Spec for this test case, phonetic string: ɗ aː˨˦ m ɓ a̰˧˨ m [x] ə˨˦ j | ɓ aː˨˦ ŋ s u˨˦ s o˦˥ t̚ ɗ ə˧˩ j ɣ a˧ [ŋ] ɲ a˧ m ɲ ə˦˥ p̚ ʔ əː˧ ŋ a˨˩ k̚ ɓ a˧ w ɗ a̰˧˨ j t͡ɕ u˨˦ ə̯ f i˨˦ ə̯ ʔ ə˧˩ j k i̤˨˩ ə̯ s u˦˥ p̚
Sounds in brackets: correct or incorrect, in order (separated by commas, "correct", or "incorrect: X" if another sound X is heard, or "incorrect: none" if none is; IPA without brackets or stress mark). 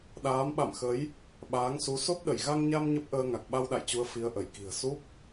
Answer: correct, correct